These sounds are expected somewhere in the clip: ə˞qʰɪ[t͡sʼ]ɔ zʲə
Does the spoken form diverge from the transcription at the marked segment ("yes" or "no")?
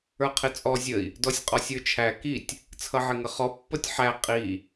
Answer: no